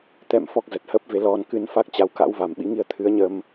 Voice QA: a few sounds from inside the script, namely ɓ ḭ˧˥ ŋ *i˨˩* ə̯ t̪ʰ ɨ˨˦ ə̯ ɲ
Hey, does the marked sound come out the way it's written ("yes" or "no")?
no